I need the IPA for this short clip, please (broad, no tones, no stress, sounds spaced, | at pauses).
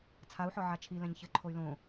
t͡sʰ a u̯ ħ ɔ ʕ a t͡ʃʰ i l ɛ̃ ɲ ç ɘ ǃʰ o y̯ l õ